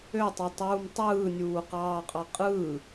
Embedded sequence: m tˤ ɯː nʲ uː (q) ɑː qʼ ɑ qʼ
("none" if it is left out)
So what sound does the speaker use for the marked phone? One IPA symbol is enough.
q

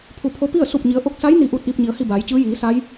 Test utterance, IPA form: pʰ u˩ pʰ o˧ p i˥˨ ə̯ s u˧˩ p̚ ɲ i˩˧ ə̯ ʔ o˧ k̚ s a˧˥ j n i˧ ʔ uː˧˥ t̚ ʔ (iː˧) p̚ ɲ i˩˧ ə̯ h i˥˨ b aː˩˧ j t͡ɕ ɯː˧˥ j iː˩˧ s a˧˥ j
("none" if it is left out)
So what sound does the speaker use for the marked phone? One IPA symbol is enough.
iː˧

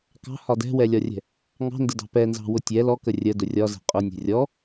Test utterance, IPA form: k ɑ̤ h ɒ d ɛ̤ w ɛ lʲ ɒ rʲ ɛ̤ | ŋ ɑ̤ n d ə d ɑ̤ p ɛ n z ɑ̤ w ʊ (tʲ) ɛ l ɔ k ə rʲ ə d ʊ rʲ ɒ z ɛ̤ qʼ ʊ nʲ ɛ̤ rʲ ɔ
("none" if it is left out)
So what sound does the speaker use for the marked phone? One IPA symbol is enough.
tʲ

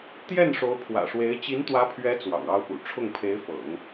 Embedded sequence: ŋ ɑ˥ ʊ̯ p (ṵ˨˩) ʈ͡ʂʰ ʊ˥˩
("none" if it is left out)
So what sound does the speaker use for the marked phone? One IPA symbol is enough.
ṵ˨˩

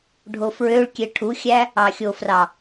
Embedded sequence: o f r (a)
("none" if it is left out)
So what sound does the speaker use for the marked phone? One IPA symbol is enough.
ɑ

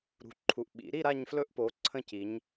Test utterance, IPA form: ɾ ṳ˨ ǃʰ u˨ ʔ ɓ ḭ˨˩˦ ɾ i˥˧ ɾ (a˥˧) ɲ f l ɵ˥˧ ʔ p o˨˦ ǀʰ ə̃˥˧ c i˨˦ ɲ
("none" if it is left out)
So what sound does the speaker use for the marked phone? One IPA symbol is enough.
a˥˧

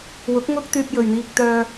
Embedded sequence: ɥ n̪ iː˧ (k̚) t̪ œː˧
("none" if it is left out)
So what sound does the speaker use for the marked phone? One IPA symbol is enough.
k̚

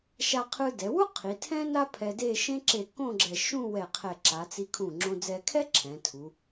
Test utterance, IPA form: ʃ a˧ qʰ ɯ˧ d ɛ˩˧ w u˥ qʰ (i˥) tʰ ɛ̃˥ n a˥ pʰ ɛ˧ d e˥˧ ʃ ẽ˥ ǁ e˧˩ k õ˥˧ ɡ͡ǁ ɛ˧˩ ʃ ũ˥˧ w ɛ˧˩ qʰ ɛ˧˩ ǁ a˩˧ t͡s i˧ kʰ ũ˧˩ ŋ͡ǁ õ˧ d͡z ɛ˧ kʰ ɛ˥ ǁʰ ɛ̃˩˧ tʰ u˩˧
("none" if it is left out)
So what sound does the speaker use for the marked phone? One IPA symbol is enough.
i˩˧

